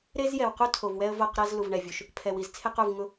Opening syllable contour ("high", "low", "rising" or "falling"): high